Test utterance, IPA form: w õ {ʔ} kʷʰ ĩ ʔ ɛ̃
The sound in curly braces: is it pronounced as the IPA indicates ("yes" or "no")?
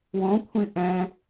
no